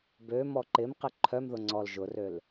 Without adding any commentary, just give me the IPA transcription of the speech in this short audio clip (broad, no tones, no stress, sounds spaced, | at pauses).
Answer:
b ø m ɔ ǃ ɪ m q ɪ ǃʰ œ m ð ʊ ŋ͡ǀ ɔ l ʒ ʊ r ø l